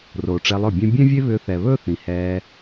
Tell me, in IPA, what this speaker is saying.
r oː˨ ʈ͡ʂ e˧ lˠ ɵ˦˨ bʲ ɛ̃˦ bʲ ɛ̃˦ vʲ e˦ β ʏː˧ θ ɛ˨ β ɵː˦ θ ĩ˨ h ɛː˧

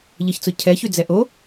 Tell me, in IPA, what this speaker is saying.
ʎ ə ç t͡s ʊ cʰ ɛ ç y d͡z ɛ ʔ o

